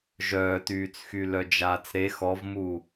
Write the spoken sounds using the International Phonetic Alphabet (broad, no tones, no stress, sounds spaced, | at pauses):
ʒ œː t yː t͡s x y l œ d͡ʒ aː t͡s ɾ e x ɔ v m uː